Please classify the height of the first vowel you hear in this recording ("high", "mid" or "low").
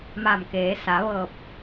low